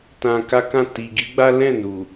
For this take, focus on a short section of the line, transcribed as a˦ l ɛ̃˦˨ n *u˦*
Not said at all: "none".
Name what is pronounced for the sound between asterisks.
u˨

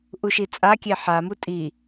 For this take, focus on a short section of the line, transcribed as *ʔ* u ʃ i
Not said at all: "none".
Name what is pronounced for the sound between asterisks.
ʔ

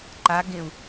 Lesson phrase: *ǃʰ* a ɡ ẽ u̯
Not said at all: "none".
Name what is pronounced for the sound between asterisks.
ǃ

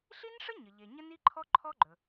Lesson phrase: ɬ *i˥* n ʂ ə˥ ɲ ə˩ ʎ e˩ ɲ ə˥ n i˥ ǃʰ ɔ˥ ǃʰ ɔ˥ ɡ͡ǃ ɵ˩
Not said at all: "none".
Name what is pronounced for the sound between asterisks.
i˥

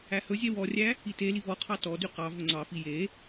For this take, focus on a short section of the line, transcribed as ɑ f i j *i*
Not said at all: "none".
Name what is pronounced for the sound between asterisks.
e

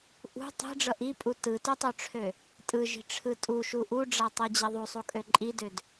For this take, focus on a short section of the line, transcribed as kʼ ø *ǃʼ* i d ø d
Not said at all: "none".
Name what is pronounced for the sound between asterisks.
ǃʼ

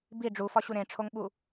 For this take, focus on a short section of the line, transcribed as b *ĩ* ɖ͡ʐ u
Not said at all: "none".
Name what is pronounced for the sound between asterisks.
i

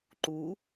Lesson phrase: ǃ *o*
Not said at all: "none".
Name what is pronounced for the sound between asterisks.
u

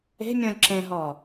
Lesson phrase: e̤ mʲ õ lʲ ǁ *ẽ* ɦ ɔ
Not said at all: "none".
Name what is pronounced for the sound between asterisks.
ẽ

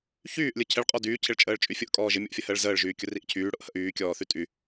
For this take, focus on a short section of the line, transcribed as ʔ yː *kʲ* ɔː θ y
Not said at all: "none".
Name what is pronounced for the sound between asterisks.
kʲ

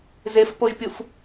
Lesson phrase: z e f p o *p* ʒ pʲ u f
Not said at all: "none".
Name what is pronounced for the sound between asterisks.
none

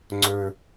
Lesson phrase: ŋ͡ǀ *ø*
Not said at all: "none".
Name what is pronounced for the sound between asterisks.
ɵ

